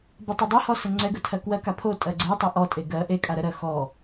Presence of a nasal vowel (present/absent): absent